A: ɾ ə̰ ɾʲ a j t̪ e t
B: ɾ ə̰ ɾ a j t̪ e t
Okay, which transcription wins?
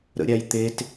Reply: A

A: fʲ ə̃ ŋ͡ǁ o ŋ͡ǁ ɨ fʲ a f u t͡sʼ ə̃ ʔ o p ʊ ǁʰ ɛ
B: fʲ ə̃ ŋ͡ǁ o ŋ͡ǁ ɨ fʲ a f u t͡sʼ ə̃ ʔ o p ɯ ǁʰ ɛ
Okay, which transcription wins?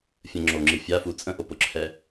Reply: A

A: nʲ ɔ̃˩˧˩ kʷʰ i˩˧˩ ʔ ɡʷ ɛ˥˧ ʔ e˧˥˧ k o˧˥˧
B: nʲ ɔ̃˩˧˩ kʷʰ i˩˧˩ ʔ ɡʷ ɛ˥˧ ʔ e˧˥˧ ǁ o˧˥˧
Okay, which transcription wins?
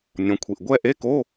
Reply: A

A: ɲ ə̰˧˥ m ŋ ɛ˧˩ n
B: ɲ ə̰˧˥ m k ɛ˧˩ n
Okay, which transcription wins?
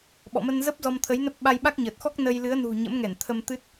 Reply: A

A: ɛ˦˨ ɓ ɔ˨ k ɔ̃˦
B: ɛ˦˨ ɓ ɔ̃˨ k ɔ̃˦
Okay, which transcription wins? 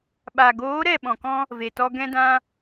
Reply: B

